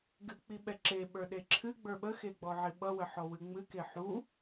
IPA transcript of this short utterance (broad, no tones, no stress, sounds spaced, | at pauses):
ɡ ɨ k͡p i ɓ ɛ ǁ e ɓ ə˞ ɗ e ǁʰ ɨ ɡ͡b ə˞ ɓ ə x e ɡ͡b ɔ ʕ i ɓ ʌ w ə ħ ɔ w ɨ ŋ͡m ɨ k e ħ u